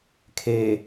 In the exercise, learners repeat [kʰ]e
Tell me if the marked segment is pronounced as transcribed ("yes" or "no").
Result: yes